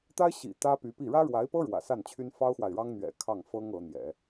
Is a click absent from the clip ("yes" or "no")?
yes